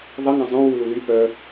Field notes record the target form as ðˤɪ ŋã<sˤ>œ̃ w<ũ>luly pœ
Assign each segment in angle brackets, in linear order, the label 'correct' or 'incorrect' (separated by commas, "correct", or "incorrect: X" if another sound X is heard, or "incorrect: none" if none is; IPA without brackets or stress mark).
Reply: incorrect: zˤ, incorrect: u